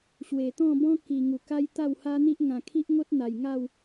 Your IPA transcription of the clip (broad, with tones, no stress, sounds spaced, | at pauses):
ɕ w e˨˩ t̪ ɔ̃˥˧ b ɔ̃˦ k i˨˩ ŋ u˨˩ k a˦ j t̪ a˥˧ w h a˦ n̪ i˦ ʔ ŋ ã˨˩ kʰ i˦ ʔ ŋ o˦ t̚ n̪ a˨˩ j ŋ a˥˧ w